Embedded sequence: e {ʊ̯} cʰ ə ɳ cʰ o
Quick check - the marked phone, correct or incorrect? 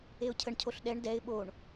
correct